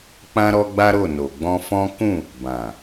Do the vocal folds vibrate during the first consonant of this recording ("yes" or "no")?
no